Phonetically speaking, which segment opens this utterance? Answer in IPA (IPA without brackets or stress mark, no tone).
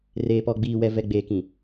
r